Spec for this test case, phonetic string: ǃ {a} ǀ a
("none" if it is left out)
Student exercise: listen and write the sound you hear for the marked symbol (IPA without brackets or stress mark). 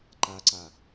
a